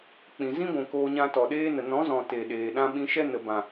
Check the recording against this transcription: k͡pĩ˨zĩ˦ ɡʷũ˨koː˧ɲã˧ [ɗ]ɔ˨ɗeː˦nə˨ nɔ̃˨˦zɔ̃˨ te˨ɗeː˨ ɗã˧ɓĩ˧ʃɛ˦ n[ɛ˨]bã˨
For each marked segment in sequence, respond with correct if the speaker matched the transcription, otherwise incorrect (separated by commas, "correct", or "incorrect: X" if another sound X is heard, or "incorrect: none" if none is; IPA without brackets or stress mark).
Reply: incorrect: t, incorrect: ə˨